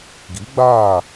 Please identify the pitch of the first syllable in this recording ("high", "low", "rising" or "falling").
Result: rising